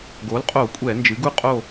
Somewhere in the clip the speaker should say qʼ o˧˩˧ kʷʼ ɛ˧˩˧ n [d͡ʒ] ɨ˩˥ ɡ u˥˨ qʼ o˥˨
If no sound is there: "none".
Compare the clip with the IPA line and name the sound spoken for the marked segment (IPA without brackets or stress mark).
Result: d͡ʒ